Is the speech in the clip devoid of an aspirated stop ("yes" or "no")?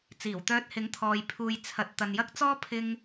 no